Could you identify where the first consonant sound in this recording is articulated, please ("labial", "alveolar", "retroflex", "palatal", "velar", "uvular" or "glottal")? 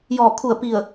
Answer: palatal